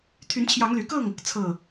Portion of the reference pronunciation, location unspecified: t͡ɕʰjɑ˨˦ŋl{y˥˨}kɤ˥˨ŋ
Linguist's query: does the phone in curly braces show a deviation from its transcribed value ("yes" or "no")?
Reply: yes